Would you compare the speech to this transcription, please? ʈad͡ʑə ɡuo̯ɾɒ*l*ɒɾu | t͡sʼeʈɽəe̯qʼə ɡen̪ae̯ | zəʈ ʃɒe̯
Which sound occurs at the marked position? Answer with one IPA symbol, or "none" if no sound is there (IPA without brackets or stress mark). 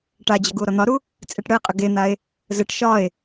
n̪